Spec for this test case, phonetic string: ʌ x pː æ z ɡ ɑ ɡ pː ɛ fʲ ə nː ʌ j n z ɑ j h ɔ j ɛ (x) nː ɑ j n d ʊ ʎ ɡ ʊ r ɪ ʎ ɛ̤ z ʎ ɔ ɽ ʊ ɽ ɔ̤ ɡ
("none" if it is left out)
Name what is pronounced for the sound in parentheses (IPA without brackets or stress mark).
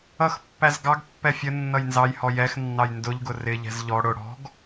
x